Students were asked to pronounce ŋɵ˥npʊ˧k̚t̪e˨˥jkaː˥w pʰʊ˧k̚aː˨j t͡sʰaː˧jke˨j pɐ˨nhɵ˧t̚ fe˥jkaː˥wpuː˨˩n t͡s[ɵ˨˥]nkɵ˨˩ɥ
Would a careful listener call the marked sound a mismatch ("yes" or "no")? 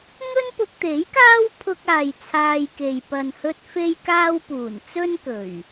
yes